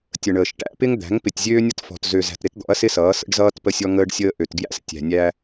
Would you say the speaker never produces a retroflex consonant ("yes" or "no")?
no